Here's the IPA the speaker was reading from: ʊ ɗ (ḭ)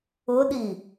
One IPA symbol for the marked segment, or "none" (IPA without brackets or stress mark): i